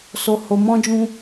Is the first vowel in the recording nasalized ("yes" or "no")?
no